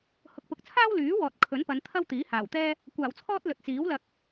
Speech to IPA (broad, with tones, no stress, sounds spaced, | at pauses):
h ʊ˨ k̚ p ʊ˨ k̚ t͡sʰ aː˥ w l yː˨˥ w ɔː˨ t̚ kʰ ɵ˨˥ n p ɐ˨˧ n t̪ʰ ɐ˥ w t̪ iː˨˥ h aː˨˩ w t̪ ɛː˥ | kʷ aː˨˩ w t͡sʰ ɔː˥ t̚ l ɵ˨ t̚ t͡s iː˨˥ w l ɐ˧ k̚